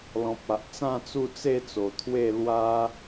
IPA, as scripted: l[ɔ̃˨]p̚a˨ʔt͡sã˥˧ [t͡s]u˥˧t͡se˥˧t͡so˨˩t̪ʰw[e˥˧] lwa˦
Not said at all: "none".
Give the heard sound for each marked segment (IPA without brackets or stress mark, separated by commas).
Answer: ɔ̃˨, t͡s, e˥˧